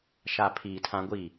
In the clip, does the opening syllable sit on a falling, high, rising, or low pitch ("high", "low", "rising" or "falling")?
low